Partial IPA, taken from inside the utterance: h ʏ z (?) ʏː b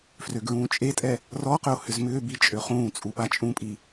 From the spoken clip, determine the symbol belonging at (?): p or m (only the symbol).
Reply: m